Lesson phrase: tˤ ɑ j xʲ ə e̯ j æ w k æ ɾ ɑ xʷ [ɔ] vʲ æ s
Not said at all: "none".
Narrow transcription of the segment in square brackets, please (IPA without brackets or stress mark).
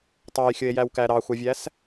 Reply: ɑ